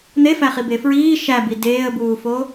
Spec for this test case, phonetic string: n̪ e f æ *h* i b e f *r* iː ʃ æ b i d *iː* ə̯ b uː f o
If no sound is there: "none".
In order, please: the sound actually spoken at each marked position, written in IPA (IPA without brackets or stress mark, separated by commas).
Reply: χ, ɹ, eː